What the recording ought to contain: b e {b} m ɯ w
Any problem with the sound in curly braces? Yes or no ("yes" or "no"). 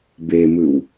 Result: yes